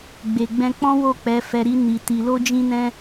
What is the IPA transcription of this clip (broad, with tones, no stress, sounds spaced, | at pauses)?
ɡ͡b e˨ ɡ͡b ɛ̃˧ k͡p ɔ̃˦ w o˦˨ k͡p ɛ˨˦ f ɛ˧ ɾ i˦ n i˧ t i˧ l o˦ d͡ʒ ĩ˦ n ɛ̃˦